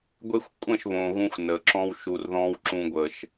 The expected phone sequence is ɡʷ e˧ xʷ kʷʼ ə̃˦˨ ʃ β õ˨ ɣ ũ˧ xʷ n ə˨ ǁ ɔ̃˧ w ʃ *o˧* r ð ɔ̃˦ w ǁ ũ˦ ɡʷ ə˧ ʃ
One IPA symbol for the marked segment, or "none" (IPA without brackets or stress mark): u˧